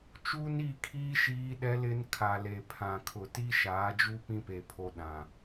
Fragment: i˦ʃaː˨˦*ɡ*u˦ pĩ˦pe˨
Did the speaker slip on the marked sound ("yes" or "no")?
yes